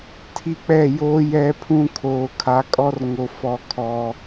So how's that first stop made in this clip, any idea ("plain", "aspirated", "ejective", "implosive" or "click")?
aspirated